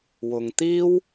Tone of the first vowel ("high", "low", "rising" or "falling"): low